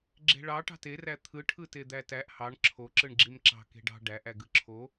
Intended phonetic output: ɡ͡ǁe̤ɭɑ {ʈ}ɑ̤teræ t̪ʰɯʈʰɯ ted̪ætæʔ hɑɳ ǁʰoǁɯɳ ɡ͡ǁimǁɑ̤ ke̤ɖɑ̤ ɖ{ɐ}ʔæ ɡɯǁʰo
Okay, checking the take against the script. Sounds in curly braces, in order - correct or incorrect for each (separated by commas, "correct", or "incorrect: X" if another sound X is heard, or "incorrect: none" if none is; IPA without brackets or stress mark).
correct, incorrect: æ